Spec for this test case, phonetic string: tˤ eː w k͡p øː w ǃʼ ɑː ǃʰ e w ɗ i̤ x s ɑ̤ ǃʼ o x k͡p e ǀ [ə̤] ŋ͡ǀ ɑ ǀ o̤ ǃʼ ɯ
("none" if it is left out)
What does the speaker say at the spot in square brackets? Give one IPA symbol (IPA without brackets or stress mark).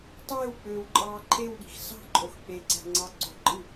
æ̤